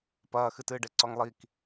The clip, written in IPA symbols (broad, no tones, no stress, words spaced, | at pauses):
pɐːxɨtɨːɖe ǀɔŋlˠik